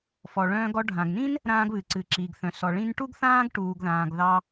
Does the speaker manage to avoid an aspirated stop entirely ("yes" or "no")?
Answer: yes